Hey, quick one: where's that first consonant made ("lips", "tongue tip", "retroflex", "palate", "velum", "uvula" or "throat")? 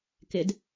velum